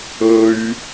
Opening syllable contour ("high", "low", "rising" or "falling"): high